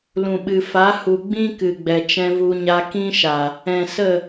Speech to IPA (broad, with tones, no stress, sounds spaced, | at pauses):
l ũ˨ ɓ ɨ˨ f a˨˦ h u˨ ɡ͡b ĩ˦ k ɨ˨ ɡ͡b ɛ˨ t͡ʃ ɛ̃˧ v u˧ ɲ a˧ k ĩ˦ ʃ a˨ | ɛ̃˨ s ə˦˨